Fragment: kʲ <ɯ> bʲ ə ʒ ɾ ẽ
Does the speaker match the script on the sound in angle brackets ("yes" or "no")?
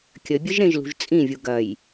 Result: no